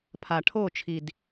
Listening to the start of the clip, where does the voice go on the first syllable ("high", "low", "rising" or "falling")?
low